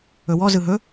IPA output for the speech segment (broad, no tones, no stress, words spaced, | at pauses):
ɵwɔ zɯɦɵ